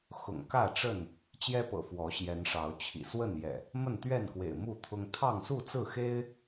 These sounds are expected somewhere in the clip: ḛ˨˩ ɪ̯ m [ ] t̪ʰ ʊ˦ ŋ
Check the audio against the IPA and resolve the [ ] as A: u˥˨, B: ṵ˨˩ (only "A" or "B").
A